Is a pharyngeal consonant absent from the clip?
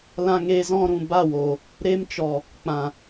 yes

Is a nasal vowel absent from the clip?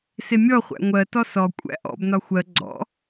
yes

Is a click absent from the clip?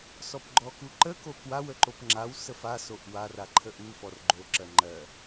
no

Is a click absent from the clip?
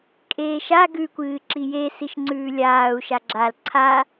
no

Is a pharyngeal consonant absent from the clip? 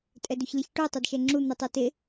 yes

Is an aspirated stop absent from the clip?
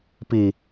yes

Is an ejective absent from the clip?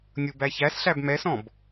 yes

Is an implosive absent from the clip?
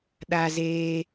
no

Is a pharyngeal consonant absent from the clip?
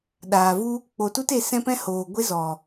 yes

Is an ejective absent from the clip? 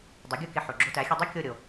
yes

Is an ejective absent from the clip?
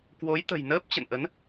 yes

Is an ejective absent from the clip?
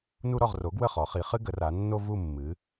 yes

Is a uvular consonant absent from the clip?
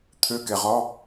no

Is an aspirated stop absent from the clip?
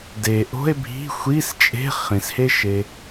yes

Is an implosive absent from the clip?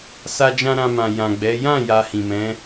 yes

